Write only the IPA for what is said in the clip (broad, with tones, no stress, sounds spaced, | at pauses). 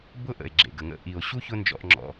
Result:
b ʊ˦ ʔ ə̰˨ e̯ ɡ͡ǁ ḛ˨ ɡ ə˨ ŋ ə̰˦ ʔ i˨ o̯ ɕ u˦ ç ʊ˦ n d͡ʒ ɔ̰˧ ʔ ŋ͡ǁ ɔ̰˧